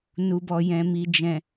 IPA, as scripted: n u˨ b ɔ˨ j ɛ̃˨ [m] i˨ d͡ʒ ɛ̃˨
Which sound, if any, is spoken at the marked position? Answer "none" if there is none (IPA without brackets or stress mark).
m